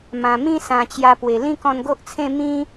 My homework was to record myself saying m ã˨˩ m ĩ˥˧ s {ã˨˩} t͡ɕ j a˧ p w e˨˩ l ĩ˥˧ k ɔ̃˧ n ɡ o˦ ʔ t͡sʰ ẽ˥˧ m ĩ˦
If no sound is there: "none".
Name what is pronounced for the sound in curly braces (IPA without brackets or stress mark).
ã˨˩